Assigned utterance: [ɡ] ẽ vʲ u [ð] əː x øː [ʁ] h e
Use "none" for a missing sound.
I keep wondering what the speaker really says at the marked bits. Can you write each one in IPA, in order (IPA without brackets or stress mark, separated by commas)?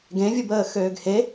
ɡ, b, ɡ